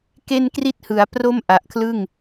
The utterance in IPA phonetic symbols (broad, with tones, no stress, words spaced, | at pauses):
ke˥˩nkri˥˩t̚hɯ˩˦a̯ pro˥˩mʔa˨˩ʔkʰlɯ˥˩ŋ